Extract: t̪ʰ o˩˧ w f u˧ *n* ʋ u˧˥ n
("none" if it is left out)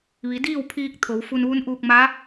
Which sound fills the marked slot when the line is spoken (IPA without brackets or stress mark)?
n